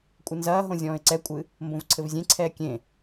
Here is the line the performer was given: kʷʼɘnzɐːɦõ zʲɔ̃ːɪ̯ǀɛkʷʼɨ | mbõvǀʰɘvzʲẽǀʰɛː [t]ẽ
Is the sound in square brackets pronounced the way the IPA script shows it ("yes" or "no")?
no